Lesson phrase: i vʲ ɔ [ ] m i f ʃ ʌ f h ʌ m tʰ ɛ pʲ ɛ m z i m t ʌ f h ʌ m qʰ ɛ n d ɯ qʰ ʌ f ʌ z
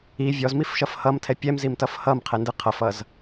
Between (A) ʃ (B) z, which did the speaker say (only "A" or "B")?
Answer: B